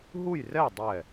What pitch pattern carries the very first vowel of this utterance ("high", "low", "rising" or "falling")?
falling